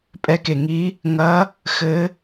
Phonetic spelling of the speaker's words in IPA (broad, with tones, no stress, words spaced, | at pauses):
pʼɛ˧˥ke˩ŋi˧˥ | ŋɐ˧˥ | xɘ˧˥